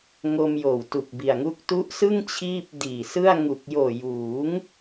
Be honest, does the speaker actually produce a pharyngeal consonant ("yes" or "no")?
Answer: no